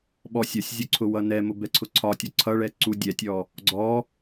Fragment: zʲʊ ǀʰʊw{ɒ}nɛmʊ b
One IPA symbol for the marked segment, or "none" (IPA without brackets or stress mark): ʌ